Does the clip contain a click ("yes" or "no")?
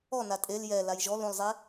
no